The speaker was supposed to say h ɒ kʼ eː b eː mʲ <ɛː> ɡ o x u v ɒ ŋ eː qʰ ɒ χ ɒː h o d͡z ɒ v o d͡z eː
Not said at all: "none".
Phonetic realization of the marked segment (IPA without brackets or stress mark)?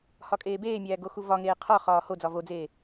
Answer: æː